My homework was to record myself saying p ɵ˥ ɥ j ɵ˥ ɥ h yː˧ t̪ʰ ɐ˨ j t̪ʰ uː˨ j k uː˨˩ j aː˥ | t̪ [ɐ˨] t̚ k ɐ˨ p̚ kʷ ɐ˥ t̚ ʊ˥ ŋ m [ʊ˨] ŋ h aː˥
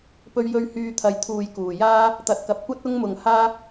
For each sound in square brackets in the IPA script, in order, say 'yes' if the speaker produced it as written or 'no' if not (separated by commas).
yes, yes